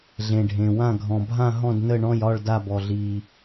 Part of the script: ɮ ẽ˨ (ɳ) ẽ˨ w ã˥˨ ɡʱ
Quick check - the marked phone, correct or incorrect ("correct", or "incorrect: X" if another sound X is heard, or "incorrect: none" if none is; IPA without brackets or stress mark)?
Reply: incorrect: ɖʱ